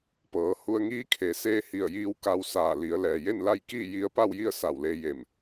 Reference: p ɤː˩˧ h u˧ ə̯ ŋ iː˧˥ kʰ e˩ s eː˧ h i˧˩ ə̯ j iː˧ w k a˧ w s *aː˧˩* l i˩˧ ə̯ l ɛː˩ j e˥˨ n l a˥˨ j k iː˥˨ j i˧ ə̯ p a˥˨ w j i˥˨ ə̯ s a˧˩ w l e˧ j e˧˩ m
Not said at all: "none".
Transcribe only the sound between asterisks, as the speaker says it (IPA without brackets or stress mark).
aː˧˩